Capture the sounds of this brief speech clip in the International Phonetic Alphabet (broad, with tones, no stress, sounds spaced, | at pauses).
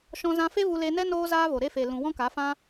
ʃ ɔ̃˧ z ã˧ f e˦ v u˧ l e˧ n ɛ˦ n oː˦ z aː˦ v o˨ ɾ e˧ f e˨ l ũ˨ w ɔ̃˦ k a˨˦ f ã˦